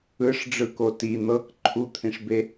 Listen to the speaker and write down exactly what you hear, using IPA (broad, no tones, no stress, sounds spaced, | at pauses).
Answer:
ɯ ʂ ɖ͡ʐ ɯ k o t i n̪ ɤ k ǃʰ u t̪ʰ ĩ ʂ b e